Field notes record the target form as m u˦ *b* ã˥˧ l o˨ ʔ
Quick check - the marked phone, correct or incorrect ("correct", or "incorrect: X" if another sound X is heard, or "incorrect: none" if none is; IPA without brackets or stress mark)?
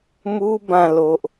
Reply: correct